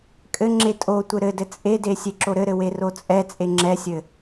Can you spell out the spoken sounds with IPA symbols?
kʼ ɘ ŋ͡ǁ e tʼ o tʷ ɘ ɾ ɘ d ɘ t͡sʼ e d e sʲ e ǁ o ɾ ɘ ɾ ɘ w e r o t͡sʼ ɛ t͡sʼ e ŋ͡ǁ ɛ sʲ ɘ

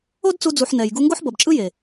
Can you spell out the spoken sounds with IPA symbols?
o˦ d t͡s u˧ d͡z u˨ ħ n ɛ˨ j ɡ u˧ ŋ ɡ o˦ ħ b ʌ˨ b t͡ʃʼ ɯ˦ j e˨

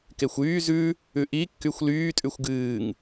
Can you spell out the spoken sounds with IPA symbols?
k e xʷ yː z ʉ | ʉ ʔ i kː y xʷ l yː tʼ ʉ xʷ ɡ ɨː ŋ

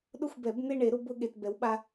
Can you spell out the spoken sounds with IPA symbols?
ɗ ʊ˥˧ xʷ b ɛ˨˩˦ b n̪ e˥˧ ɳ e˨˩˦ ɾ ʊ˥˧ b ʊ˥˧ ɠ e˨ t b ɛ˨˥ w ɓ a˦˥

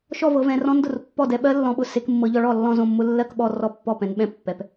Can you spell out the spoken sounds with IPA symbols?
ʃ ɔ˥˩ v ɤ˨˦ v ɛ̃˨˦ r ɔ̃˦˥ n d ʊ˥˩ r pː ɔ˥˩ d ɛ˨˦ ɓ ɜ˦˥ lː ɔ̃˨˦ ɓ ʊ˨˦ s e˨˦ k mː ɤ˨˦ ʎ ɔ˨˦ ɭ ɔ˥˩ lː ɔ̃˥˩ z õ˥˩ mː ʊ˦˥ lː ɜ˥˩ k ɓ ɔ˥˩ r ɔ˥˩ pː ɔ˥˩ p ɛ̃˨˦ n ɓ ɛ̃˥˩ pː ɛ˨˦ p

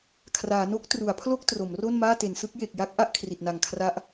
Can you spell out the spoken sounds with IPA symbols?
kʰ r aː˩˦ n o˦˥ k̚ t r u˩˦ a̯ pʰ l o˥˩ k̚ t r o˩˦ m r o˥˩ n m aː˥˩ t e˩˦ n s ɯ˦˥ k̚ j e˨˩ k̚ j a˦˥ k̚ ʔ a˥˩ ʔ kʰ r i˨˩ t̚ n a˨˩ ŋ kʰ r a˦˥ ʔ

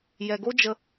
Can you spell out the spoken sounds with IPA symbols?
j ɛ˧ ɡ o˦ d͡ʒ ə˧

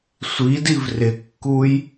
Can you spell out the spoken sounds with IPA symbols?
sʷ i d i v r ɪ kː u j

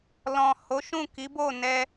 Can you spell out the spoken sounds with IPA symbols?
l ɔ̃˨ h o˨˦ ʃ ũ˦˨ k i˨˦ b o˦˨ n ɛ˧

